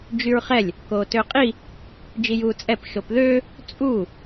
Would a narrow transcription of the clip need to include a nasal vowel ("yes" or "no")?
no